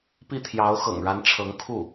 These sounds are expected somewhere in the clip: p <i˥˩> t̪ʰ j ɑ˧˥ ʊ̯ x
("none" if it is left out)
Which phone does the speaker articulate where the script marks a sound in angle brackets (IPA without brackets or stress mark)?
i˥˩